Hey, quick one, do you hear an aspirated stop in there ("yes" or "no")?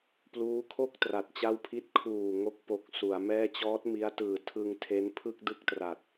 yes